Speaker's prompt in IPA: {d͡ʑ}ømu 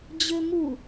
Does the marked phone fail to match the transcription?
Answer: no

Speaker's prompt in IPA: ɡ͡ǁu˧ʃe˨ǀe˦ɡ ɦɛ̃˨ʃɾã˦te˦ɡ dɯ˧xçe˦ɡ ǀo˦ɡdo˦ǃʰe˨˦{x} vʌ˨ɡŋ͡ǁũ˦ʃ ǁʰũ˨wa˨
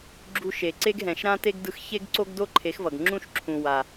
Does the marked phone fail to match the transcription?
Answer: no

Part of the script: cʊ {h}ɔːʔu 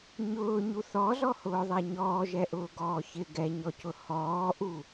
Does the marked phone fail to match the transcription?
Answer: no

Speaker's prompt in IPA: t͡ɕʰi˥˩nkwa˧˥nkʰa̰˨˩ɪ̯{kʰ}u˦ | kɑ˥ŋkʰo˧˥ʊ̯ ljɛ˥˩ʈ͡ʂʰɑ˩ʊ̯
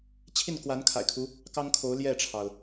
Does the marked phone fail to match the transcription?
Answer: no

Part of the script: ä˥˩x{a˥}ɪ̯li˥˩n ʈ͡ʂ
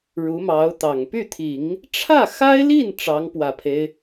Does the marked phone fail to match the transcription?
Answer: no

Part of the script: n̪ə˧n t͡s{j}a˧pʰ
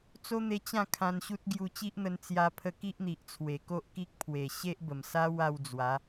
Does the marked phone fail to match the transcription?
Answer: no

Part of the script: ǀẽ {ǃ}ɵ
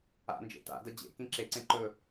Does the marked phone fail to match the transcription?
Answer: no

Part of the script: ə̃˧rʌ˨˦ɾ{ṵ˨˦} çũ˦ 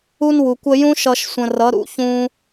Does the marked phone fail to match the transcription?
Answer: no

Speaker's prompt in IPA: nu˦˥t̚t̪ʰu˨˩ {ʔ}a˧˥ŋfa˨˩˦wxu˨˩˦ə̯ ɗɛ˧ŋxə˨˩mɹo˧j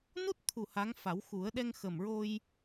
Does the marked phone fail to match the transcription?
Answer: yes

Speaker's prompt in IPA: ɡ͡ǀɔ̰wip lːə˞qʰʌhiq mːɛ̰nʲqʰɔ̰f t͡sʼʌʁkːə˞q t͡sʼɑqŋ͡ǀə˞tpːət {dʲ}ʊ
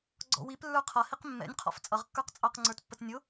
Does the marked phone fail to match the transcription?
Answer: yes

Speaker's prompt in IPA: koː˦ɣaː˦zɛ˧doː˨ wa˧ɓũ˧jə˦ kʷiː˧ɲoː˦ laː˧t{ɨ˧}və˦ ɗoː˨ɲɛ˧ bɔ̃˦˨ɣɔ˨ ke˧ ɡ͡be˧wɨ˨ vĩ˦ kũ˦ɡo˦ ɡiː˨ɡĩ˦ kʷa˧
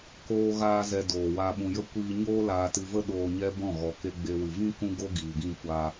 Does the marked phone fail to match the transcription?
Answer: no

